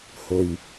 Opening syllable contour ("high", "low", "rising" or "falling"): low